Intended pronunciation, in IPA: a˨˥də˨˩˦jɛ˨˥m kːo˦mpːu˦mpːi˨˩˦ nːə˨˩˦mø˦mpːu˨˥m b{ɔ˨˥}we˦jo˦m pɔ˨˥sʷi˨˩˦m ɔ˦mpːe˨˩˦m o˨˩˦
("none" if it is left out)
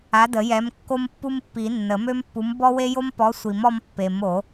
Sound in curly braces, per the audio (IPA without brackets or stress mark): ɔ˦